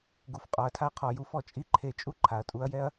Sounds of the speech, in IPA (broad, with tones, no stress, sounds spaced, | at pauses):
ɡ u˨ f qʼ ɒ˨ ɐ̯ tʰ a˦ qʰ ɔ˨ j u˦ f ɔ˨ t͡ʃʼ i˦ ǃʰ e˧ t͡ʃʼ u˦ ǃʰ a˨ ɐ̯ tʼ u˧ ɐ̯ j ɛ˦ ɐ̯